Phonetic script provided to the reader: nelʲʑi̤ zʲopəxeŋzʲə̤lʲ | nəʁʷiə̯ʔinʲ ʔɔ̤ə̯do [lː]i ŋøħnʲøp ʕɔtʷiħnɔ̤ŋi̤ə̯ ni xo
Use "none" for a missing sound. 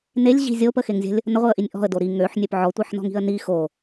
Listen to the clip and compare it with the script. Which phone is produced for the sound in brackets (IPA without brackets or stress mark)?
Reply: ɾ